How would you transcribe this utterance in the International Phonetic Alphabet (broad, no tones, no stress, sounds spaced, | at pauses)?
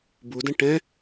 b u d ɐ̃ ʈ ɛ̃